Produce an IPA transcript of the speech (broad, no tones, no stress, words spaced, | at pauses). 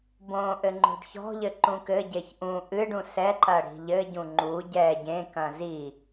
bõʔɘ ŋ͡ǃo̤ɖçɔ̤ʎɘ ǃũkɘɟeç ʔũ ʔɨɖũ sɛǃɐ ɽi̤ʎɘɟũ ŋ͡ǃu ɟɛ ɟẽkɐ̃ zi